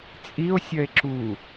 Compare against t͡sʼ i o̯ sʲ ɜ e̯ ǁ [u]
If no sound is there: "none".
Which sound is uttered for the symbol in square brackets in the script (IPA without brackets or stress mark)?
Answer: u